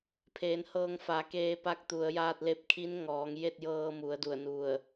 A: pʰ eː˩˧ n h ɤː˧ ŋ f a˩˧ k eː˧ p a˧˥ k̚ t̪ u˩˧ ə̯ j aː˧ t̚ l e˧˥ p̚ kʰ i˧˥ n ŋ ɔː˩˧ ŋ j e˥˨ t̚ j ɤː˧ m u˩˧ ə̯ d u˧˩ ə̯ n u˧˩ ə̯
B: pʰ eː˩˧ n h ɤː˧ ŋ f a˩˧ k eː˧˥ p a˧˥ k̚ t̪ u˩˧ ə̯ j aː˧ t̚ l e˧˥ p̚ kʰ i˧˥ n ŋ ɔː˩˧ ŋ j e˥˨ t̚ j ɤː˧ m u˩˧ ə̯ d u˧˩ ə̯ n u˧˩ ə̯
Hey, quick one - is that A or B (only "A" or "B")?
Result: A